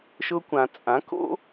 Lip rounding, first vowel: rounded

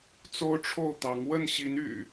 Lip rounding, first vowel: rounded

